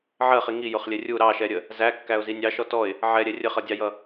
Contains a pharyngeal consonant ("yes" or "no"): yes